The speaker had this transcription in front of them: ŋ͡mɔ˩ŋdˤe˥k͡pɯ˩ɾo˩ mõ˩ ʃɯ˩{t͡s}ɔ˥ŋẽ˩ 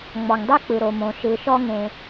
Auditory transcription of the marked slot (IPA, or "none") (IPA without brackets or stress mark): ʃ